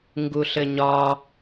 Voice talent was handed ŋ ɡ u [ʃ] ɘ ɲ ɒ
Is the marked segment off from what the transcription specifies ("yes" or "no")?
yes